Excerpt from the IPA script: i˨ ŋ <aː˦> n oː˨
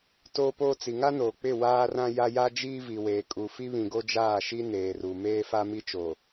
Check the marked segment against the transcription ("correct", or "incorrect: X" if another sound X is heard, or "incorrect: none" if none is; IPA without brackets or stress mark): incorrect: a˦